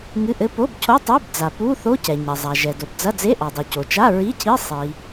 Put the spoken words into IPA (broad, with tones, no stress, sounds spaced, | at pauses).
ŋ ɨ˧˥˧ ʔ ɘ˧˥˧ p o˧˥˧ b cʰ o˧˥˧ tˤ ɛ˧˥˧ b d͡z a˩ p u˧˥˧ θ o˧˥˧ c ɛ˩ ɲ ɐ˩ zˤ a˩ ʒ ɛ˩ d o˩ b d͡z ɐ˧˥˧ d͡z e˧˥˧ ʔ ɔ˩ dˤ u˩ c o˩ t͡ʃ a˧˥˧ ɹ i˧˥˧ cʰ i˧˥˧ sˤ i˩